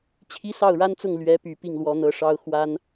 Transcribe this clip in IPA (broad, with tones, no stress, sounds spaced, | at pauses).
t͡ɕʰ i˥ s ɑ˥˩ ʊ̯ ɻ a˥ n t͡s ʊ˥˩ ŋ l ɥ ɛ˧˥ p y˨˩ p i˥˩ ŋ l w ɔ˧˥ n̪ ɤ˧˥ ʂ ɑ˥ ʊ̯ x w a˥ n